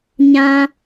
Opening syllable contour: high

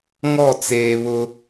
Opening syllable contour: falling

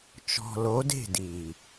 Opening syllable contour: low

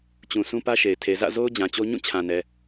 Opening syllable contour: low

